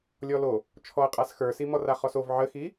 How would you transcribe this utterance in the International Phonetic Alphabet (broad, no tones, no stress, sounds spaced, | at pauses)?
lʲ ɔ l o | t͡ʃʰ ɔ ɐ̯ qʼ a s x ə˞ s i m ɔ r a χ ɔ s o v ʕ ə x i